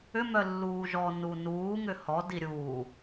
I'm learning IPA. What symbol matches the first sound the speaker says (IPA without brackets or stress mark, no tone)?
ʏ